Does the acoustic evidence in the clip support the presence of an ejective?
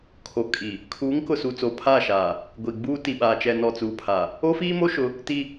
yes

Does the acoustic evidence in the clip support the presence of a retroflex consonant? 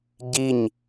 no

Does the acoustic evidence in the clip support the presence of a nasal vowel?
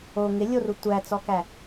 no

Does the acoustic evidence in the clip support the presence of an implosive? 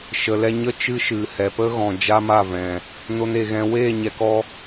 no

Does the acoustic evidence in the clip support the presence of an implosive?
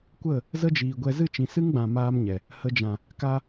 no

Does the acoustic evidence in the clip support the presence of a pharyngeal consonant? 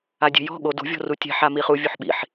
yes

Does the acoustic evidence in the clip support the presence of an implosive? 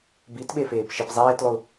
yes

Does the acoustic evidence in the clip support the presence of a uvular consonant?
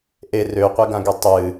yes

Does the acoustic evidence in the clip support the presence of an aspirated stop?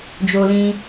no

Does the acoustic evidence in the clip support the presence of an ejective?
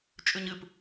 yes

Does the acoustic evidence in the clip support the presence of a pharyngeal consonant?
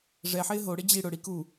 yes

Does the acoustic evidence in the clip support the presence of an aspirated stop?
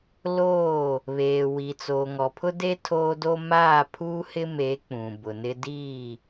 yes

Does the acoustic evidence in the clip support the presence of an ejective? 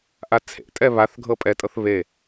yes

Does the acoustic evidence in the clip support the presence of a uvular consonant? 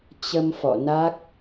no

